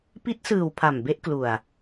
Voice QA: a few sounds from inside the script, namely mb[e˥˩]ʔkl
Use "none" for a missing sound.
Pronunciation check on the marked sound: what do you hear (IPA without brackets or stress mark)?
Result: e˦˥